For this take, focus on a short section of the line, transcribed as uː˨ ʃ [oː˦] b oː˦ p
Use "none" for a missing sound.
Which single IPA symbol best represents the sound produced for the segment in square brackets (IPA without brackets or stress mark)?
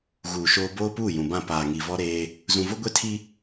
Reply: oː˦